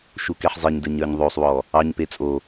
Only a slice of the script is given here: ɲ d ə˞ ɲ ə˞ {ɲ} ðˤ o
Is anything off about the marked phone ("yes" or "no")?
no